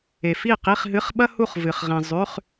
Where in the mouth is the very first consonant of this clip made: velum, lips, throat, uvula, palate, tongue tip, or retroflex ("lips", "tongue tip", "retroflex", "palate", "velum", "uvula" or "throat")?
lips